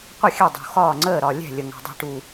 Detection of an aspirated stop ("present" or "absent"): absent